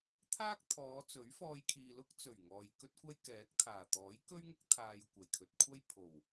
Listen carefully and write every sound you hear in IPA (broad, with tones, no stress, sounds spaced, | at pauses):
t̪ʰ aː˥ k̚ t̪ʰ ɔː˨˧ t͡s ɵ˨˥ ɥ f ɔː˧ j kʰ iː˨ l ʊ˥ k̚ t͡s ɵ˨˩ ɥ ŋ ɔː˨ j k ɵ˥ t̚ kʷ ɐ˥ j k ɛː˨˥ k̚ t̪ʰ aː˨˩ t̪ ɔː˨˥ j k ɵ˥ ɥ ŋ ʊ˥ k̚ t̪ʰ aː˧ j kʷ ɐ˨˩ j kʰ ɵ˧ t̚ kʷʰ ɐ˥ j pʰ o˨˩ w